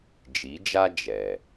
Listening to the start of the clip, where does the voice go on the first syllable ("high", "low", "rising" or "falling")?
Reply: rising